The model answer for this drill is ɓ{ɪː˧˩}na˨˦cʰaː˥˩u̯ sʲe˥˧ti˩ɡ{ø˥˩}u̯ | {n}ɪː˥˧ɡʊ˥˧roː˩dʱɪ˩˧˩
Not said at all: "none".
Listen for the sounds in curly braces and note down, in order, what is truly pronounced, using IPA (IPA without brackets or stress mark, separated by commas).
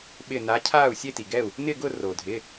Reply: ɪː˧˩, ɛ˥˩, n